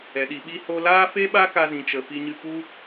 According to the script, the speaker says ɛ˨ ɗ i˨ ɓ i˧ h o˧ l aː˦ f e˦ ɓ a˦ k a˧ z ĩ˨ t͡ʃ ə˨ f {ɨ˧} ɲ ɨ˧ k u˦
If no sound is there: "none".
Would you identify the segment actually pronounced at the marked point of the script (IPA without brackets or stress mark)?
i˧